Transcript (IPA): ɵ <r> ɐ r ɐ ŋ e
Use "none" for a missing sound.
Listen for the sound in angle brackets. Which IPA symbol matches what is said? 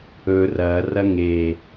r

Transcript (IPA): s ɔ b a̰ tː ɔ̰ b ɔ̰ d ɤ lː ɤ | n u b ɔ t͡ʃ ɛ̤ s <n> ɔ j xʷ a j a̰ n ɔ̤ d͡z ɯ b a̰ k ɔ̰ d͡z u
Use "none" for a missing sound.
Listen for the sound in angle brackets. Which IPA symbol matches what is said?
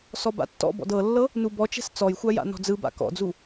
t͡s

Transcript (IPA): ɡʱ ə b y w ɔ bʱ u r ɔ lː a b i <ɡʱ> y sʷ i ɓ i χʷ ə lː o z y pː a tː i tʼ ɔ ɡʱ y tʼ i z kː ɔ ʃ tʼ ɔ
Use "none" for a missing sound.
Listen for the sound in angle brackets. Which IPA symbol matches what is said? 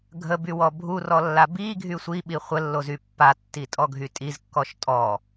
ɡʱ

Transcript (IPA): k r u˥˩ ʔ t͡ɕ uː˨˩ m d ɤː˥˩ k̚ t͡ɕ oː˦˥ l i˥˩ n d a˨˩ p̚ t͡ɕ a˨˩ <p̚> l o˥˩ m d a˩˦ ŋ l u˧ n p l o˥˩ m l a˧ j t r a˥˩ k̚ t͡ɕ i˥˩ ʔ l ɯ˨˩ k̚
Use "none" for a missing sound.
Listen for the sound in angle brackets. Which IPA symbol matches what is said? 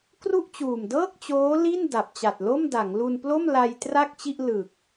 t̚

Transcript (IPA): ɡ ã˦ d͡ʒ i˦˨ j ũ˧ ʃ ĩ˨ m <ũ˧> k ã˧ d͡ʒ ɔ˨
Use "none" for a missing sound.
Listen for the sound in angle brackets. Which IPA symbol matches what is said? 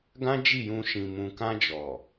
ũ˨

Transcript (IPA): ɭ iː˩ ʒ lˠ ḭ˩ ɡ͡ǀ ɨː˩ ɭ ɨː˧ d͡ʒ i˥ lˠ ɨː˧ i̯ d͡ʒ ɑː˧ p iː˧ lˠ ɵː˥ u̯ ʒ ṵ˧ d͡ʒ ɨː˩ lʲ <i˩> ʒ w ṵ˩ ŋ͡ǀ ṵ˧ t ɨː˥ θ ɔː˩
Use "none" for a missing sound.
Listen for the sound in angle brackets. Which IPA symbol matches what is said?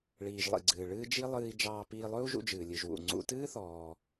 ɨ˩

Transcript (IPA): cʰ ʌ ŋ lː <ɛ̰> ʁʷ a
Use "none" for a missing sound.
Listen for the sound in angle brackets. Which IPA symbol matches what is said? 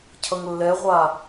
ɛ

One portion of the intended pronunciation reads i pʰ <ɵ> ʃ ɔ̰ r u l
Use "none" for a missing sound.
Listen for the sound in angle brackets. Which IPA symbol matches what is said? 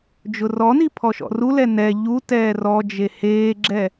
ɔ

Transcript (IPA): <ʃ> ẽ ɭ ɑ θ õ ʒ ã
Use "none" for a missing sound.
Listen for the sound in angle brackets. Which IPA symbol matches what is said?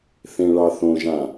θ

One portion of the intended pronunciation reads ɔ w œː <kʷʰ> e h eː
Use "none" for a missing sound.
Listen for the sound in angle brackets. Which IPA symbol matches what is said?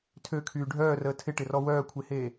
kʷʰ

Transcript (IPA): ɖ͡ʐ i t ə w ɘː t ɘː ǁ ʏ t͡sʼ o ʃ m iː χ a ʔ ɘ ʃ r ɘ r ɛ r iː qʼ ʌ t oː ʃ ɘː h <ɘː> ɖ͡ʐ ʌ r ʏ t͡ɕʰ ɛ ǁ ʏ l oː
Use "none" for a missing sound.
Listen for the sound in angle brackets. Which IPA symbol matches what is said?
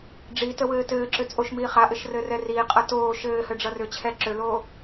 ɘ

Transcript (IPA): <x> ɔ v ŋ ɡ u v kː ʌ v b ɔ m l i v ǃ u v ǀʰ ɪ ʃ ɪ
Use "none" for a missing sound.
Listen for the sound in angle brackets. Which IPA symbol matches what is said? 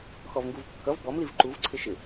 x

